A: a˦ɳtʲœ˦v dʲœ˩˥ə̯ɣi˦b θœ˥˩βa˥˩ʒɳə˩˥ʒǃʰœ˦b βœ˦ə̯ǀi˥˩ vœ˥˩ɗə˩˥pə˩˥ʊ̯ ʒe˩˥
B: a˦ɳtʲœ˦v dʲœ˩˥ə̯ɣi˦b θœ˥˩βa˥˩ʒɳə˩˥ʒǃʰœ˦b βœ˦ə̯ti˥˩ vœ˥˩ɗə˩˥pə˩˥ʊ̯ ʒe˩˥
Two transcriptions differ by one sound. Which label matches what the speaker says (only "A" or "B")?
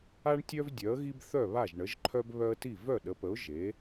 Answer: B